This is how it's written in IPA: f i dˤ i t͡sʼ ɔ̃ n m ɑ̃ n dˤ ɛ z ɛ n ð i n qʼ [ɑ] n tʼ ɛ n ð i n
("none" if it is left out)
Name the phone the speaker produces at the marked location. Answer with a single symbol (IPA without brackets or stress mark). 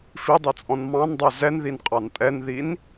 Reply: ɑ